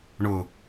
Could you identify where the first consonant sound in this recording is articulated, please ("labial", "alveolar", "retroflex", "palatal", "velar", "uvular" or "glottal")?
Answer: retroflex